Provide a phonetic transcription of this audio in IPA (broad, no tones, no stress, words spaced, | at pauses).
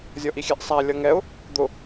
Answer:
zʲɔʔixʲɛʔsˤæ lʲʌŋɛʊ̯ | d̪ʊ